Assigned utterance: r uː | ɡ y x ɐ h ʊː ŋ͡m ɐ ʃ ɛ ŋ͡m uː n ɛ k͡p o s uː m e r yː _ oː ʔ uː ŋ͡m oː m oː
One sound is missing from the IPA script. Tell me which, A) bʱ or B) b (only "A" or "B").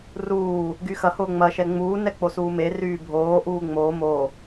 A